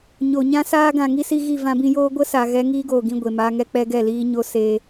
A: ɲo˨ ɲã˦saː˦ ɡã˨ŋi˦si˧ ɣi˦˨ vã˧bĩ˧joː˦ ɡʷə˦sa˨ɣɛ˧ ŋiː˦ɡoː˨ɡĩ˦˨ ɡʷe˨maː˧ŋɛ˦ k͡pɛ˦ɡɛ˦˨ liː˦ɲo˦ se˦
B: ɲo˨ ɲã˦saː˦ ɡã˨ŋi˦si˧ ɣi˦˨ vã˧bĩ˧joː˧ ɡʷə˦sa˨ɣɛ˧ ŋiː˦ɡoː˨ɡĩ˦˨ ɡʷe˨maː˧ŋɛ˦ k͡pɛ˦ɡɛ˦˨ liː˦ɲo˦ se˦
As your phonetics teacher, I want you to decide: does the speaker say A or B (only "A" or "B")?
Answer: A